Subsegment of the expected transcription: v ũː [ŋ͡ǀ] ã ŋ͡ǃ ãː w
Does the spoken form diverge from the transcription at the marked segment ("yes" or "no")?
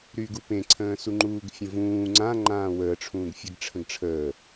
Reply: no